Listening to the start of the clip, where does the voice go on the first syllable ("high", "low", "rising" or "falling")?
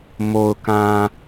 low